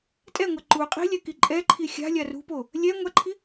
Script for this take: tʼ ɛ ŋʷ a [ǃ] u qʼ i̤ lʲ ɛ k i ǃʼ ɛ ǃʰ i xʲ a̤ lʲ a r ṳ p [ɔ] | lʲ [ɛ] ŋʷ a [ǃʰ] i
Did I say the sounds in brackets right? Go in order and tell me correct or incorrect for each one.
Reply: correct, incorrect, correct, correct

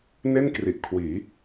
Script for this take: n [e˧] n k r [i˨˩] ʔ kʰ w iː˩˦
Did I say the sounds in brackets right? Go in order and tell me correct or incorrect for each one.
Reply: incorrect, correct

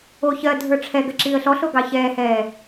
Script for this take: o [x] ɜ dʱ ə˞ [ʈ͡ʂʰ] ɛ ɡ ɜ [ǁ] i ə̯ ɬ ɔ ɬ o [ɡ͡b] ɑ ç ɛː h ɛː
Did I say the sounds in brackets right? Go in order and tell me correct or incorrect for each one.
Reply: incorrect, correct, correct, incorrect

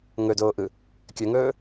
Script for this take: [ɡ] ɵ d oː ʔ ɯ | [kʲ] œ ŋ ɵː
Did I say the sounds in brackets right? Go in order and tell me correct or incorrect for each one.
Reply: incorrect, correct

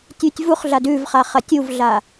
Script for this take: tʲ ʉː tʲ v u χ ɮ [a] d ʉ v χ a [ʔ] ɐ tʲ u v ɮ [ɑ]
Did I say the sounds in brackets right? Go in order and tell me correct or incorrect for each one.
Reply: correct, incorrect, incorrect

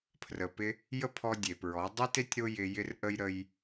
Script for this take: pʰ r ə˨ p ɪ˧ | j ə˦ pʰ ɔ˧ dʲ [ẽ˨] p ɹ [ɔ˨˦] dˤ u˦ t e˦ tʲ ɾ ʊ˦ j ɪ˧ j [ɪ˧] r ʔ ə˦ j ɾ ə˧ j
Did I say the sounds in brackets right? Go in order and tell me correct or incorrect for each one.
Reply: incorrect, correct, incorrect

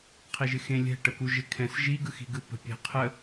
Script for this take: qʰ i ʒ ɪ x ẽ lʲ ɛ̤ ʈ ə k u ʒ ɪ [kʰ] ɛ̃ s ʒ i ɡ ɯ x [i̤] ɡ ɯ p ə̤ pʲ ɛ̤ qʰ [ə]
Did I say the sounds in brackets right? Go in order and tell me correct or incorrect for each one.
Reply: correct, correct, correct

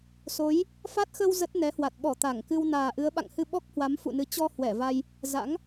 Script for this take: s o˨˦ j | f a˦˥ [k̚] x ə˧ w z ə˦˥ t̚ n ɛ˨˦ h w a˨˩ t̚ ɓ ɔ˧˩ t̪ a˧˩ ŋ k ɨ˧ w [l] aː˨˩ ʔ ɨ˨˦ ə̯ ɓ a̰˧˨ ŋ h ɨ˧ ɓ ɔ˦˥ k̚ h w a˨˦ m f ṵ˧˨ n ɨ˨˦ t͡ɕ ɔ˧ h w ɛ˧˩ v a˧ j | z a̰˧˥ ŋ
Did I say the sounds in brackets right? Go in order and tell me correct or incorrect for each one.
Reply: incorrect, incorrect

